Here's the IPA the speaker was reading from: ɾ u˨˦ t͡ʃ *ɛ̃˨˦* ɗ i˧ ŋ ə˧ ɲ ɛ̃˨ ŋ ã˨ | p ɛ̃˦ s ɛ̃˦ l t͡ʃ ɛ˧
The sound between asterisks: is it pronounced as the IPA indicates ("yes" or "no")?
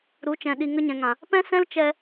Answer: no